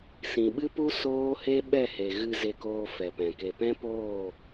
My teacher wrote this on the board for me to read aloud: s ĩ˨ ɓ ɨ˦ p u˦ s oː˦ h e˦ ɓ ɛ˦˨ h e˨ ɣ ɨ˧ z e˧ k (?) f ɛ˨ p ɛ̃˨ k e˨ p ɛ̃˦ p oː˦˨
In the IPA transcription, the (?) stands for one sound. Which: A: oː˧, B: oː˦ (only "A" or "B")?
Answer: A